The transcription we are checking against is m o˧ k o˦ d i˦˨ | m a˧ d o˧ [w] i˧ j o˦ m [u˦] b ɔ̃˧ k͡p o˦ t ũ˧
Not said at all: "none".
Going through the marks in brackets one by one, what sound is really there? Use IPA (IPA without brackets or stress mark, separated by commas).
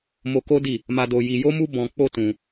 j, u˦